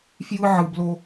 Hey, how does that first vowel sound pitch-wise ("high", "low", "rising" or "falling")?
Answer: high